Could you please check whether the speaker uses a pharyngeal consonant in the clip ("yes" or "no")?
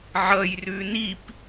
yes